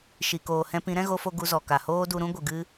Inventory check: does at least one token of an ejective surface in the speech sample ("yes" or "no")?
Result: no